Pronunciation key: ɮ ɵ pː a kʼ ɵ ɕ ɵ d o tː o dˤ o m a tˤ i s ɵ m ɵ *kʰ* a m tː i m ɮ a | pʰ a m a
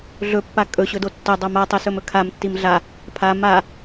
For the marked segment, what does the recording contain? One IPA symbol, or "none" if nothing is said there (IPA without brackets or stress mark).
kʰ